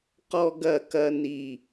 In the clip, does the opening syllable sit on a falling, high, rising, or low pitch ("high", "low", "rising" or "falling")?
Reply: high